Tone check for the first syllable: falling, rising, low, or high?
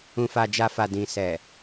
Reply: low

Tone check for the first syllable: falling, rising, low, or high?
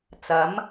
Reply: rising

